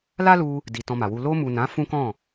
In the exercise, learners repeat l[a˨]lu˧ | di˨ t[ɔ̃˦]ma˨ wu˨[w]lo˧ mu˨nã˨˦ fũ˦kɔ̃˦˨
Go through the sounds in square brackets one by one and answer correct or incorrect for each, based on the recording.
incorrect: a˦, incorrect: ɔ̃˧, incorrect: none

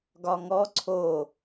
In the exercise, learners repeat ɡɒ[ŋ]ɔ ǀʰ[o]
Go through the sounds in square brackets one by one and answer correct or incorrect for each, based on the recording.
correct, correct

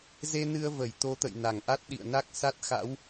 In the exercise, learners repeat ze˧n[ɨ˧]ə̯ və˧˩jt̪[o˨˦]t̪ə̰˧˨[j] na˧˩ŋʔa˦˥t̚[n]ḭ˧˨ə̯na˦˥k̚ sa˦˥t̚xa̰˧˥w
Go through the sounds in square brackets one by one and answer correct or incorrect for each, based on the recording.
correct, correct, correct, incorrect: ɗ

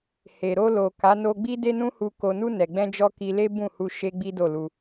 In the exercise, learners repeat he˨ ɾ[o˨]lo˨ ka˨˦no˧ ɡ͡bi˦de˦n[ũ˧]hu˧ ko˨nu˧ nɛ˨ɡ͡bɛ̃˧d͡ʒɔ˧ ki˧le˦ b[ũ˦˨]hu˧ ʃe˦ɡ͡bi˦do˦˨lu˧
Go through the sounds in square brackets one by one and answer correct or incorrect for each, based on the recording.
incorrect: o˧, incorrect: ũ˦, correct

